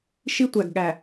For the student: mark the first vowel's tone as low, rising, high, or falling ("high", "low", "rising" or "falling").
high